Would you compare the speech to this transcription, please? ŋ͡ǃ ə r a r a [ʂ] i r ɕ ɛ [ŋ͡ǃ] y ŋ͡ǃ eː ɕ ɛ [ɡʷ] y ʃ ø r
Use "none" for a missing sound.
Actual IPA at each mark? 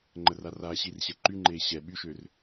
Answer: ɕ, ǃ, ɓ

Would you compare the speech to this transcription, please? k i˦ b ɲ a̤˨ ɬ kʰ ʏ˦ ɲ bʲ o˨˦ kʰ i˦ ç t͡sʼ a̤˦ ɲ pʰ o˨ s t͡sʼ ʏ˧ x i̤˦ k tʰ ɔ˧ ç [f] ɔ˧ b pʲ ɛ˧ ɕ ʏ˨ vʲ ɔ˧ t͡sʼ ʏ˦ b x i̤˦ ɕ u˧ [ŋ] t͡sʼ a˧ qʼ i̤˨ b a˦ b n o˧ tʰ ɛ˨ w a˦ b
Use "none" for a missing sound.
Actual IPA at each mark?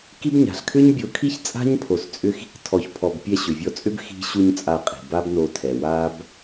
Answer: pʰ, ɲ

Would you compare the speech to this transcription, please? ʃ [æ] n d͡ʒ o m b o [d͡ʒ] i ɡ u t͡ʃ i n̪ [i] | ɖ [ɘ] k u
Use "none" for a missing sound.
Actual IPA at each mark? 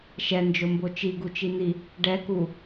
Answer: ɛ, t͡ʃ, i, ɛ

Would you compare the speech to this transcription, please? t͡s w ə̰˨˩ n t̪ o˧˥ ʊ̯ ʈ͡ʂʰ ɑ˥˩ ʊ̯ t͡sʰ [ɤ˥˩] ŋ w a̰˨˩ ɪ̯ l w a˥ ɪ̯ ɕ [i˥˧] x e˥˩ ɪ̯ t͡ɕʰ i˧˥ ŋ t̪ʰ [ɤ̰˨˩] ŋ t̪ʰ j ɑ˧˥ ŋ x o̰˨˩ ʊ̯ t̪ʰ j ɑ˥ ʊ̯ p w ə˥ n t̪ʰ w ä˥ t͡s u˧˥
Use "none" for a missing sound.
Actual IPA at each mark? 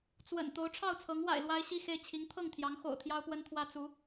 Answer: ɤ˧˥, i˥˧, ɤ˥˩

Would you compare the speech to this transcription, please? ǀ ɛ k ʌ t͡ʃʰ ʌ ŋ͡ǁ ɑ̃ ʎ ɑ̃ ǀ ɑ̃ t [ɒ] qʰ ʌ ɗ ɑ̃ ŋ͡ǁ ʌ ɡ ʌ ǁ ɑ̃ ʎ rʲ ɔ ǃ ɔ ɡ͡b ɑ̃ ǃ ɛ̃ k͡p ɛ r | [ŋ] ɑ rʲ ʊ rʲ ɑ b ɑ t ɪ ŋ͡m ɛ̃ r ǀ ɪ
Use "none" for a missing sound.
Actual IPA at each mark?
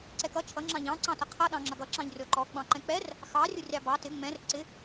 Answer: ʌ, x

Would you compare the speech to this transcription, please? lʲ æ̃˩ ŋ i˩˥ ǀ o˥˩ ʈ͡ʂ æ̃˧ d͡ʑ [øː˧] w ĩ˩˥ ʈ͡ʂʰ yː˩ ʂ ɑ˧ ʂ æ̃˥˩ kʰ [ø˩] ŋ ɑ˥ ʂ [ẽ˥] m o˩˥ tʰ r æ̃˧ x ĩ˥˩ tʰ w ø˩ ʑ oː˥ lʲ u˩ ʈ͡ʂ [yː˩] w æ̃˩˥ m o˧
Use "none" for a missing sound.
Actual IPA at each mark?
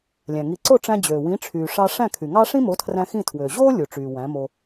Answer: øː˩, y˩, ĩ˥, yː˩

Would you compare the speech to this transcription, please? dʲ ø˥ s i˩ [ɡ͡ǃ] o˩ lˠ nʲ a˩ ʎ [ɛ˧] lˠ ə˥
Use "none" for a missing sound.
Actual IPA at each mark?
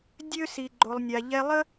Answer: ɡ͡ǃ, ɛ˧

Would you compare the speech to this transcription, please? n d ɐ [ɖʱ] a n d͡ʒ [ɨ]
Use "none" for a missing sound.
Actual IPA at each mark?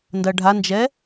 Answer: ɖʱ, ɛ

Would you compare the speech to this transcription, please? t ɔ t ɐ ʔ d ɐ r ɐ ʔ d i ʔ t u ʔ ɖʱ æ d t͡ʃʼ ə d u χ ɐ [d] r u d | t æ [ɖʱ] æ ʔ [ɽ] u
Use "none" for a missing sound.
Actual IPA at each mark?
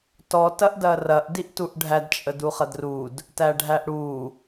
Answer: d, ɖʱ, ɽ

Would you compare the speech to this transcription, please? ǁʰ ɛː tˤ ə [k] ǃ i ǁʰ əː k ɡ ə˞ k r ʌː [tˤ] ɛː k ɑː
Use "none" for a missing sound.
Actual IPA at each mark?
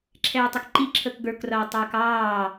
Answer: k, tˤ

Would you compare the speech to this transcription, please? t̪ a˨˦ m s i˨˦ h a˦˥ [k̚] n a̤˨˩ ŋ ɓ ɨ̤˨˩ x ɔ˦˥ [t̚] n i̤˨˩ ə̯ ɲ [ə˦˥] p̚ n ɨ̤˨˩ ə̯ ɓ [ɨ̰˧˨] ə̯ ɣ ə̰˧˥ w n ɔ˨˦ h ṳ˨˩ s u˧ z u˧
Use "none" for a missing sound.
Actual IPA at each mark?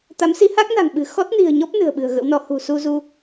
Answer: k̚, t̚, ɔ˦˥, ɨ̤˨˩

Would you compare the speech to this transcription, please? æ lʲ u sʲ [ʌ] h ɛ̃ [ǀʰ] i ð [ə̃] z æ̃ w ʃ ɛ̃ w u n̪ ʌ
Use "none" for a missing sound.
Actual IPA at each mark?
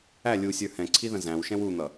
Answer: ə˞, ǀʰ, ə̃

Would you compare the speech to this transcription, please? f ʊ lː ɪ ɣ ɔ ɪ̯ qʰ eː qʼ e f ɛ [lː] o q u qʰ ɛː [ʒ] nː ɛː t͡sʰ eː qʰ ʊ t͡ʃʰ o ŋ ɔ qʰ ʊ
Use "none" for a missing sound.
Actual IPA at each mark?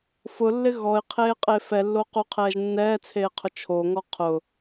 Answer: lː, ʒ

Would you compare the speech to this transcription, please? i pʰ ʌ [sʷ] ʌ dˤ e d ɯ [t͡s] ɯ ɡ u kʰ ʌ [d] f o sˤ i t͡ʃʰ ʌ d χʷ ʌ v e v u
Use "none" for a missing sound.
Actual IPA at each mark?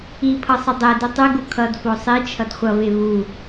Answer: sˤ, tˤ, d

